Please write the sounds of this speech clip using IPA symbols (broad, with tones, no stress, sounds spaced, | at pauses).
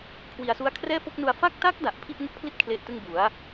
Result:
kʰ w i˧ a̯ s u˦˥ a̯ kʰ r ɛː˥˩ f o˥˩ k̚ n u˧ a̯ f a˥˩ k̚ t a˦˥ k̚ d a˨˩ ʔ pʰ i˥˩ ʔ ŋ u˦˥ k̚ pʰ l i˥˩ t̚ kʰ l e˦˥ ʔ t ɯ˥˩ ŋ b u˩˦ a̯